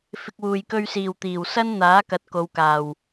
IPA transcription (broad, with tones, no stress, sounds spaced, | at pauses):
f ɪ˨ k̚ w uː˨˩ j k ɵ˧ ɥ s iː˨˩ w t̪ iː˨˩ w s ɐ˥ n n̪ aː˨˥ k ɐ˨ t̚ k o˨˧ w k aː˨˩ w